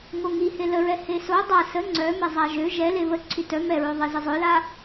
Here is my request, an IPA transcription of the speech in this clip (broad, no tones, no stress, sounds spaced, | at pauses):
ŋ o ŋ i h e l ə ɹ ɛ h e s o dˤ a s ə ŋ͡ǀ œ m ɛ zˤ a ʒ ø ʒ ɛ l e β ə ǀʰ y t œ m ɛ ɹ ø ðˤ e z ə zˤ œ l a